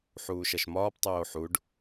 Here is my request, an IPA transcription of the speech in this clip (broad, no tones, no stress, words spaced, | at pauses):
ħuːʃɐʃmɒːp tˤoːħuɖ